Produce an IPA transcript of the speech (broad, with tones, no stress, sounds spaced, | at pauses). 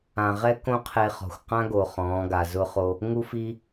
ã˨ ʁ ɛ˦ k õ˦ qʰ e˦ χ ɔ̤˨ xʷ q ã˦ ɡ o˨ χ ɔ̃ː˨˦ ɡ a˨ z ʊ˦ χ o˦ | ŋ u˦ f i˦